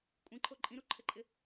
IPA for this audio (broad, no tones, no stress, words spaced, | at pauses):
kʷʼĩǃʰo ǃʼĩɾuǃʰɘǃʼɪ